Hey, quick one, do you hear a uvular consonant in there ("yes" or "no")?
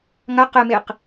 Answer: yes